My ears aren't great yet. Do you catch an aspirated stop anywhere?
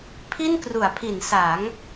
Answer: yes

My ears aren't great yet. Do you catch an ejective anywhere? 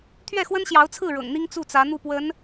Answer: no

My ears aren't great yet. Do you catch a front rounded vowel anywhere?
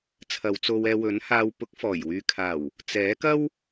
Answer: yes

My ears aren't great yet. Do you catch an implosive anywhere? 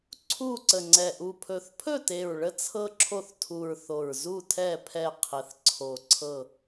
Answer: no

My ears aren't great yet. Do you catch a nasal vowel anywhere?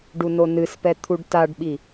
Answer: no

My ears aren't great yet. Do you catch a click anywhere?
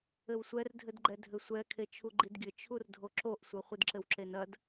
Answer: yes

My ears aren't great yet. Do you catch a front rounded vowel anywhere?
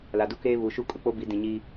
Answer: no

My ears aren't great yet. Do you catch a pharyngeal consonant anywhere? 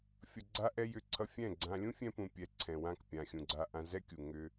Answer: no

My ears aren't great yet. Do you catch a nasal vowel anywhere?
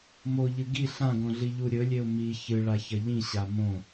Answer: yes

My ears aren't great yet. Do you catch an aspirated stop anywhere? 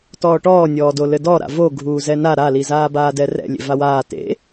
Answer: no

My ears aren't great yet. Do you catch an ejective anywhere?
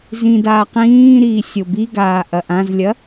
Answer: no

